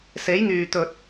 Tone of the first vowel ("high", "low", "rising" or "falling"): rising